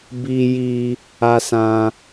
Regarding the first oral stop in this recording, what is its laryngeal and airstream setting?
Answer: plain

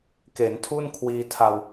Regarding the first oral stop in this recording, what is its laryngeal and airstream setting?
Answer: plain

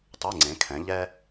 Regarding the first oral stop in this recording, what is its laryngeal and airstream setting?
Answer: plain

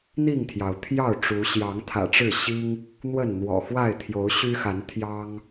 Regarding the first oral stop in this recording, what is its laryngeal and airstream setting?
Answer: aspirated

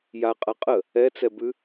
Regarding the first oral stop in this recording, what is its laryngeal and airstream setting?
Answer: ejective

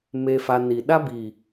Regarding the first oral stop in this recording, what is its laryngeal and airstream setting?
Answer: implosive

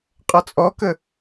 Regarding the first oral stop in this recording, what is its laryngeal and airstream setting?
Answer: ejective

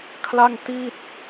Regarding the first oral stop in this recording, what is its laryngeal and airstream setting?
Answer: aspirated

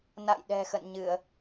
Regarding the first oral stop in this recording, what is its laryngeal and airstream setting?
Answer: implosive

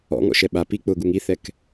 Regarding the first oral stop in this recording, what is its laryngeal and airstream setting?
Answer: implosive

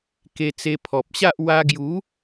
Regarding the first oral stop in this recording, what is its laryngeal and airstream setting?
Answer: plain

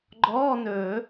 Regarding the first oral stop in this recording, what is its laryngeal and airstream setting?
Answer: click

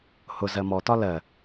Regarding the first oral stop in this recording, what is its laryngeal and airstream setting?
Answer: plain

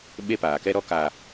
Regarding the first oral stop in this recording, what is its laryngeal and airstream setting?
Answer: implosive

